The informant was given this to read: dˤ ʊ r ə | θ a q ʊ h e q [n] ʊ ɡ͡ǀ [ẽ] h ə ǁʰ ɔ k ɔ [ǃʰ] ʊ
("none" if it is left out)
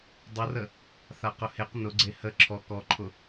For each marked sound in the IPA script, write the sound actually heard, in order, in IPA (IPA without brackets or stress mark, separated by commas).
n, e, ǃʰ